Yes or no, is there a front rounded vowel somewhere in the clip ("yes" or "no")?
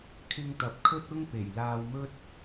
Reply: no